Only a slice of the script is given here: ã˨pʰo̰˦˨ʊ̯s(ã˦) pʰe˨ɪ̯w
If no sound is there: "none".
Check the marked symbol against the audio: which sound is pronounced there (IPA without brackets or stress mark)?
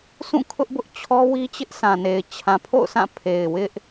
ã˦˨